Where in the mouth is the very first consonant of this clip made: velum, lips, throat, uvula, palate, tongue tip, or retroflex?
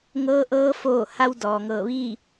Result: velum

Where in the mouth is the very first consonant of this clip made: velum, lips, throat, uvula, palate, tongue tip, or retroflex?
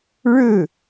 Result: retroflex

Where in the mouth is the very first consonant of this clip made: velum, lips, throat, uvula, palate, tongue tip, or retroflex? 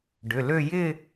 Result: retroflex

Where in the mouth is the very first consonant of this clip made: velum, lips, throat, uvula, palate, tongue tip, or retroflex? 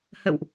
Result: throat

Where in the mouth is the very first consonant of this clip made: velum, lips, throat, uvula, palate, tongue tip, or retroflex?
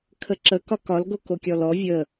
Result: velum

